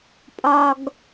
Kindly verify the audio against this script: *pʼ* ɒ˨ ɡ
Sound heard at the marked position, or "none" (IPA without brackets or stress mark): pʼ